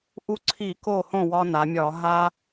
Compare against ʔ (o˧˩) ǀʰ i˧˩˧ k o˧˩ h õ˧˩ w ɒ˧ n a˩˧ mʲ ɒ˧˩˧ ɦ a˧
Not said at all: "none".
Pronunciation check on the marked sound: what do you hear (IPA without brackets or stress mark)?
u˧˩